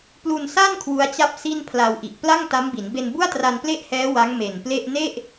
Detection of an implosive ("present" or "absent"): absent